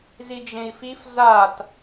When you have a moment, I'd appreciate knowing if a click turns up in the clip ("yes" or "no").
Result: no